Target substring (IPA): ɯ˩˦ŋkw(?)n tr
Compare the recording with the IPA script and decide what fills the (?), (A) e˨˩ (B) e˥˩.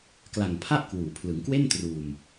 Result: B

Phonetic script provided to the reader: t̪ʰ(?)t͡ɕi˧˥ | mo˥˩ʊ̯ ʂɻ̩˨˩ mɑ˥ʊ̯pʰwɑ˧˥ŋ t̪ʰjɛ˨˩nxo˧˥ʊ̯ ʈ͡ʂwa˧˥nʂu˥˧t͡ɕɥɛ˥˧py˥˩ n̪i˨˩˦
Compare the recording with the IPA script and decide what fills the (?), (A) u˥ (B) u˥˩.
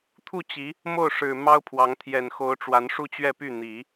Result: B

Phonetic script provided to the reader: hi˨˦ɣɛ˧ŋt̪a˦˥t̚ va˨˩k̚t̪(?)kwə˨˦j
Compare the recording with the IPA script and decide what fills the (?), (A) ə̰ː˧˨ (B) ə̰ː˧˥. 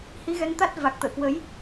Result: A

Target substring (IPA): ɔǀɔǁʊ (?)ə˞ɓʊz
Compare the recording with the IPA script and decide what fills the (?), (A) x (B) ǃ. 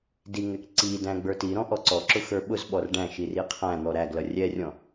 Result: A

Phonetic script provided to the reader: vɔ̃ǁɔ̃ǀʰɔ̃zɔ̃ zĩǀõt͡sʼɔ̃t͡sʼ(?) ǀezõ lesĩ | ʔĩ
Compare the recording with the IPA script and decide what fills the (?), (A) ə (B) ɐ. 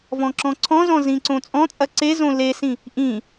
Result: B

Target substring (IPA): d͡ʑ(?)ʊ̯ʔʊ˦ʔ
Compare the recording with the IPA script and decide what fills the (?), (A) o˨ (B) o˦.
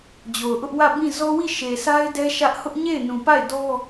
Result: A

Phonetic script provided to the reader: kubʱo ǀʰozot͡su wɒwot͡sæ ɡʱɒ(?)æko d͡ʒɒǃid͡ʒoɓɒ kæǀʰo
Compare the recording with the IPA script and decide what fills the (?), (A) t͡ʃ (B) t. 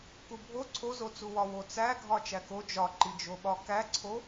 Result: A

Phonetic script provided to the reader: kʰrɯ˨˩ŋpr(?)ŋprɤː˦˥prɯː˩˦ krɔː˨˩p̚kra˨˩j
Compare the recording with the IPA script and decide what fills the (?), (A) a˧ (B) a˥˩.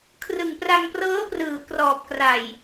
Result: A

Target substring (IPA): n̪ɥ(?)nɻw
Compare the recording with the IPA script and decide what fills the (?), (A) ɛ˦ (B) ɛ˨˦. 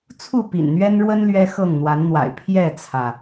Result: A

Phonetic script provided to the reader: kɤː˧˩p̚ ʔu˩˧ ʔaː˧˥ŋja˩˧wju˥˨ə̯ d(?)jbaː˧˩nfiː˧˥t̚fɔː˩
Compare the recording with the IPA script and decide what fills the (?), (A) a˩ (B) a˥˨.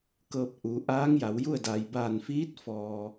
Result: A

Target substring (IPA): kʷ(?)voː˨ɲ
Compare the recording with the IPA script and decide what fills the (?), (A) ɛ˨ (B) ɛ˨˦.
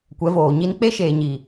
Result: B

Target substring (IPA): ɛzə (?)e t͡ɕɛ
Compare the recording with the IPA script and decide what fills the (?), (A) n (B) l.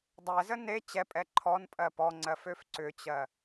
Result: A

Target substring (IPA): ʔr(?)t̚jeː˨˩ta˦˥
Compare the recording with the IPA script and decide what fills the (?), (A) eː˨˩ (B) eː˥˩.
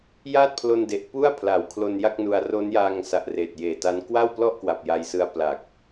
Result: A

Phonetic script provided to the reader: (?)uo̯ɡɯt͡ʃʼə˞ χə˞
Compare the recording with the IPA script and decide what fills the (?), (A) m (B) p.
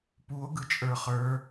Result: B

